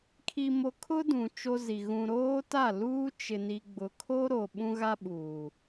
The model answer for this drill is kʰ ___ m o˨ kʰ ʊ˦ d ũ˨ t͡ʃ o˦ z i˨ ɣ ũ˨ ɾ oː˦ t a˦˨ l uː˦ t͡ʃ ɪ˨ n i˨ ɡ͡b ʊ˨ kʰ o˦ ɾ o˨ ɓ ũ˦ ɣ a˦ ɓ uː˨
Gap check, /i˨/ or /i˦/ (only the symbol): i˨